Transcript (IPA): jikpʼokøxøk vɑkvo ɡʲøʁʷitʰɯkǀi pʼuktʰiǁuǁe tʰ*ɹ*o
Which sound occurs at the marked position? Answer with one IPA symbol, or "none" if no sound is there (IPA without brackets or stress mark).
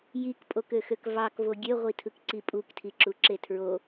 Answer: ɹ